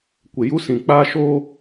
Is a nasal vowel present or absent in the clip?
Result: present